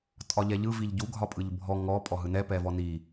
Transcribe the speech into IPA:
tʼ ɒ ʎ ɛ ʎ ɯ v i ʎ ɟ u ɡʱ ɒ pʼ ɯ ʎ bʱ ɔ ŋ ɔ pʼ ɔ ɦ ɯ n ɛ p ɛ v ɔ n i

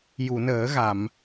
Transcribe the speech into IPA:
j u˨˩˨ n əː˨˩˦ ɣ a˨˩˨ m

